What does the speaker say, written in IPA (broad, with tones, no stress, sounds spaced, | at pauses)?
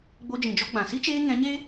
ɡ͡b o˧ d͡ʒ ĩ˨ d͡ʒ ɔ˧ ɡ͡b ã˨ s i˦ t͡ʃ eː˧ ŋ ɛ̃˨˦ ɲ e˦